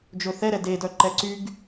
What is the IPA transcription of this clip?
d͡ʒ ɵ θ ɛ ɾ ɛ d e d œ ǃ ɛ ǀ y ɡ

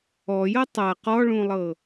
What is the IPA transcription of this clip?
ɔ j ɤ tˤ a q ɔ ɭ ũ lˠ ɤ

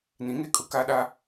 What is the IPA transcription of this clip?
n ĩ˨˦ ŋ e˦˨ kʼ ʊ˦ k a˦ ɗ a˦

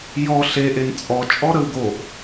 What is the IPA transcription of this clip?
j ɔ ɬ e ʔ e n t͡sʼ ɔ t͡ʃʼ ɔ ɾ ə w ɡ o ʔ

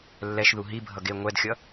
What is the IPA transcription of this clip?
lː ɛ ʃ ð u ɦ i bʱ ʌ ɡ e ŋʷ ɛ d xʲ ʌ

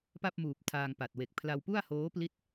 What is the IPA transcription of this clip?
p a˥˩ p̚ m uː˨˩ p̚ tʰ aː˧ ŋ p a˨˩ t̚ w e˨˩ k̚ pʰ l a˧ w p u˥˩ a̯ h oː˦˥ p l i˦˥ t̚

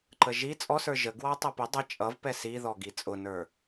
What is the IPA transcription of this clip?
ǃ ə ʒ i t͡sʼ ɔ s ə˞ ʒ ə ɡ w ɑ tˤ ɛ p ɪ dˤ ə t͡ʃʼ ʌ v p ɛ s i ð ɔ ɡ i t͡sʼ ʊ n ə˞

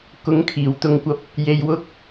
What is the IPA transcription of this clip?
k ʊ˨˥ ŋ kʰ iː˨˩ w t̪ ʊ˨ ŋ kʷ ɐ˨˥ p̚ | j e˨ j w ʊ˧ k̚

